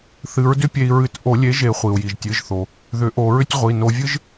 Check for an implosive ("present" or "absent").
absent